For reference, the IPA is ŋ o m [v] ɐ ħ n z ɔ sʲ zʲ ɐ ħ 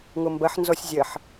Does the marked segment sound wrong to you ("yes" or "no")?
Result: yes